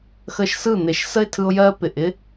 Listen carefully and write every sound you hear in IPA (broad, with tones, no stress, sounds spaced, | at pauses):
x ə˧ ʃ s ɯ˦˨ n̪ e˨ ʃ s ə˦ ɪ̯ tʰ ɯ˧ ʊ̯ j ɜ˦ p ɪ˨ ʔ ɪ˦